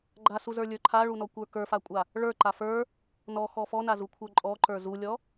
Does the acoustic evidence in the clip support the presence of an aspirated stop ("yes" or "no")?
yes